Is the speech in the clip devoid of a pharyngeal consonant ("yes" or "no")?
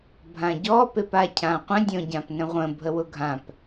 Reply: yes